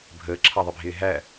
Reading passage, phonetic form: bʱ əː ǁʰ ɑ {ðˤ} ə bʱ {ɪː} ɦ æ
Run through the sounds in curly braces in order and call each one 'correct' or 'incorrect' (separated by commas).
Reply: correct, correct